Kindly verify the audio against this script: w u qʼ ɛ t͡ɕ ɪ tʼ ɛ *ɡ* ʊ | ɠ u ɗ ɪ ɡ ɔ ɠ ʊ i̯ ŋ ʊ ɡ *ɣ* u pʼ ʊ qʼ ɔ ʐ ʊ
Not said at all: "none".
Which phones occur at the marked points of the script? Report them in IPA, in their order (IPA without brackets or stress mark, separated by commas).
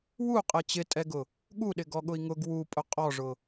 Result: ɡ, w